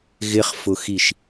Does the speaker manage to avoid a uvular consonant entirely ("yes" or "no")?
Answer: no